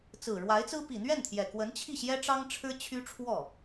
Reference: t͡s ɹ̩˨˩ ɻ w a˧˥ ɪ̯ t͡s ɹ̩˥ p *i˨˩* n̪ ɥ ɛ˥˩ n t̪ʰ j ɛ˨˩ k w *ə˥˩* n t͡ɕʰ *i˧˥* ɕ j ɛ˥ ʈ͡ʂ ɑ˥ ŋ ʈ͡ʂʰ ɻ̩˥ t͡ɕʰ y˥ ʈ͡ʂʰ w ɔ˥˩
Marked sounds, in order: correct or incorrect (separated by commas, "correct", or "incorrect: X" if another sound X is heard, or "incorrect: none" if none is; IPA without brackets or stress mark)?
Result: correct, incorrect: ə˧˥, incorrect: i˥˩